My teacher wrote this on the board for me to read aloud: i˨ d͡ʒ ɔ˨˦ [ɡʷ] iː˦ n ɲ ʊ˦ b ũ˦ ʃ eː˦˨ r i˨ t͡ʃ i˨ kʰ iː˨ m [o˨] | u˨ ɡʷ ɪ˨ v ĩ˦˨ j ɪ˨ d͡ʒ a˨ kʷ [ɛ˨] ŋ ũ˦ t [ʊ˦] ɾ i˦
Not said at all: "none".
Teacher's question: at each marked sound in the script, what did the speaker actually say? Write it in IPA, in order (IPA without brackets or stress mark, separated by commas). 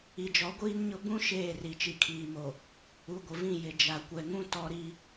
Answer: ɡʷ, o˨, ɛ˨, ɔ˦